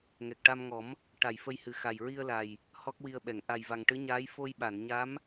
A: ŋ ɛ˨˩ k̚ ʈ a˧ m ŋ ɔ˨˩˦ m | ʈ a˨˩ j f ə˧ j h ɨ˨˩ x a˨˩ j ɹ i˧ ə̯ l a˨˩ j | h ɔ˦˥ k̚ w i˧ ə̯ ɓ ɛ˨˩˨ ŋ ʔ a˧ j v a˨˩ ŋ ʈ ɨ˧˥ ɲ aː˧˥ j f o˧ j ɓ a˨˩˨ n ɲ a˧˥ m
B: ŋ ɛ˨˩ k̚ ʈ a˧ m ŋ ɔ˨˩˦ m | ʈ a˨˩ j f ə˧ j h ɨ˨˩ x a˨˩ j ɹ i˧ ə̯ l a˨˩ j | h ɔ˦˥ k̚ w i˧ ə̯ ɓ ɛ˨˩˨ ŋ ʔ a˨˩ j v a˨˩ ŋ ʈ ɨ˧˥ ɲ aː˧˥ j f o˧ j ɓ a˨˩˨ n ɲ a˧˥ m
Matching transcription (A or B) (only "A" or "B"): B